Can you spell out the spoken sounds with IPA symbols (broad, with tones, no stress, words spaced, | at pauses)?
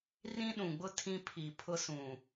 rĩ˦ɗũ˨ɡ͡bʊ˦ tʰĩ˦pʰi˨pʰʊ˦sũ˨